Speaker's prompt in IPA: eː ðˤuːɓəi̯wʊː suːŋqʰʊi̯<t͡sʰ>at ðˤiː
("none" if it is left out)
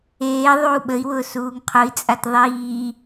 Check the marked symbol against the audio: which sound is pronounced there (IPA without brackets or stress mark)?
t͡sʼ